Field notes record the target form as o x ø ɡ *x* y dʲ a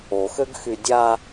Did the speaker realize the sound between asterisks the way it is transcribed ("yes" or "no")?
yes